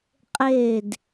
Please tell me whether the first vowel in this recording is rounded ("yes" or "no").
no